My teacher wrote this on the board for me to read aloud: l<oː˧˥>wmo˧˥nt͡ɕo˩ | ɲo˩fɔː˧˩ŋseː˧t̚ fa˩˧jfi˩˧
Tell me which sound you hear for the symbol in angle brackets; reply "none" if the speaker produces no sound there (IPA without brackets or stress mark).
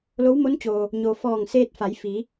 o˧˥